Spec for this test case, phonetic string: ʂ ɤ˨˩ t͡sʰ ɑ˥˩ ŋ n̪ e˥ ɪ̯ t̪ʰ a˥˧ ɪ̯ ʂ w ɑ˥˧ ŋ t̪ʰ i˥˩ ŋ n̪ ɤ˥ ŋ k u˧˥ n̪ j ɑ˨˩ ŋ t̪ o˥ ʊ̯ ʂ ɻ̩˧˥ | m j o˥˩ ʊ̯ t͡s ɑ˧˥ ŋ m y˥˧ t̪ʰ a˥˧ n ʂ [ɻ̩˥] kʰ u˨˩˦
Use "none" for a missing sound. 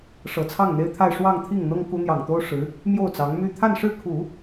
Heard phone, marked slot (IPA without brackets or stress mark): ɻ̩˥˩